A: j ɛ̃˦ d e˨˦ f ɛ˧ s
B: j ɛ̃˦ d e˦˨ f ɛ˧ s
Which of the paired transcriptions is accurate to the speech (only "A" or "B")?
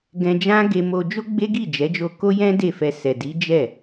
B